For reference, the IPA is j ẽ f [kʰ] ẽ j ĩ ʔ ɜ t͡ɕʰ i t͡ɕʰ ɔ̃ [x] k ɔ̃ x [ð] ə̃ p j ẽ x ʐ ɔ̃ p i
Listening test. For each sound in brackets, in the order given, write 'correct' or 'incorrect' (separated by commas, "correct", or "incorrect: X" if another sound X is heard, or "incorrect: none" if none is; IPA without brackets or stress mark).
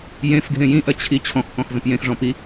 incorrect: ɡʱ, correct, incorrect: z